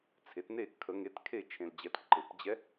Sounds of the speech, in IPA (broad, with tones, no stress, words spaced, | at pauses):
t͡sʰe˩˥tne˥˩ kʰə˨˩˦ŋe˩˥t kʰe˥˩ t͡ʃʰẽ˨ld͡ʑɛ˨˩˦t ǃɘ˨˩˦pd͡ʑɛ˧˥